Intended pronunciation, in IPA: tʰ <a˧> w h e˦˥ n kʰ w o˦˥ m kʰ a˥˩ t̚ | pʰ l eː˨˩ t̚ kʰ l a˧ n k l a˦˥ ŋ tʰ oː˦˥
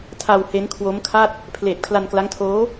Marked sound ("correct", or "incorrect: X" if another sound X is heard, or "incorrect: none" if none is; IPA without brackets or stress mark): correct